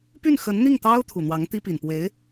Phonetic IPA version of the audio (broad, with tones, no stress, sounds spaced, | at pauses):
p y˥˩ n x ə˧˥ n n̪ i˥˩ ŋ t̪ ɑ˥ ʊ̯ t̪ʰ u˨˩ n̪ w ɑ˧˥ ŋ t̪ i˥ p i˨˩ n p w e˧˥ ɪ̯